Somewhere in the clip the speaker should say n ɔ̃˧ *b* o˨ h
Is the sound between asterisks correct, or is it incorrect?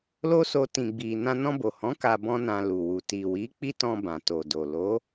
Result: correct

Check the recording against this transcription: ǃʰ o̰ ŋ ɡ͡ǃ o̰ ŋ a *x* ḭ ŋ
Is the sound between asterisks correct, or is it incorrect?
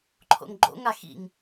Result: correct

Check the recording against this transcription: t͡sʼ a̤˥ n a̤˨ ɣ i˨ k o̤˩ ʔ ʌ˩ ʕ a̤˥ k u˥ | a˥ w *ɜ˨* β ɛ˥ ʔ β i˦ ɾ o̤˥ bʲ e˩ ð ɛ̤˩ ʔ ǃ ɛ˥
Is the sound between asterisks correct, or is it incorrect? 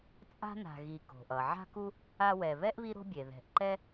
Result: incorrect: ɛ˨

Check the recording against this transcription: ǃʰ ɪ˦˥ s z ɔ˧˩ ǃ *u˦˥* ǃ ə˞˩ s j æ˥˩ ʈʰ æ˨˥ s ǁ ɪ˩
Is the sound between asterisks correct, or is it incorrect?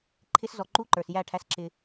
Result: correct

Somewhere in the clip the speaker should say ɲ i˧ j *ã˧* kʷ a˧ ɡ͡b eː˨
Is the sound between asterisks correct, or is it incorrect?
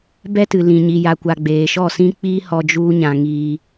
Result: incorrect: a˧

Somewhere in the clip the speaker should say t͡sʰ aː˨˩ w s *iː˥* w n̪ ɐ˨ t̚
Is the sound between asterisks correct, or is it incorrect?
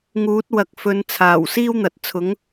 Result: correct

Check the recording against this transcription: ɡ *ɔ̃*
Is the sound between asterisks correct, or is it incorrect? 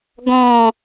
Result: correct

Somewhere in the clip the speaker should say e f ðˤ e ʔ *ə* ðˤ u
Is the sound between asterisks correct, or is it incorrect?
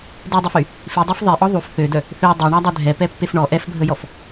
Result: incorrect: ɔ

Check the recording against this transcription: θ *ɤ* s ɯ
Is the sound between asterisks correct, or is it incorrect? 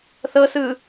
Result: correct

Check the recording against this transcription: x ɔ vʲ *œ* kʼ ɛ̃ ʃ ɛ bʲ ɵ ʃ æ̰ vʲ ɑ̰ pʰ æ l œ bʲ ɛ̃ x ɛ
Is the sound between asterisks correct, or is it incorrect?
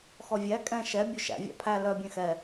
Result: incorrect: æ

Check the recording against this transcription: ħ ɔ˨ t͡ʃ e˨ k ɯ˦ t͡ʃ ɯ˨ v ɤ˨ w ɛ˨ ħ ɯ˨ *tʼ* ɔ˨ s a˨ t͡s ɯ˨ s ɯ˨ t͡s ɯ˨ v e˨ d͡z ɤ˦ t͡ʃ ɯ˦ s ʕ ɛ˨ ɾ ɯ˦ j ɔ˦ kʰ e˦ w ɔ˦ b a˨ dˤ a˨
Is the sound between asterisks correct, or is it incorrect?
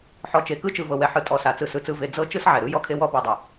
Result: correct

